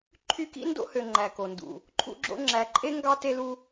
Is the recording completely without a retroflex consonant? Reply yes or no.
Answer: yes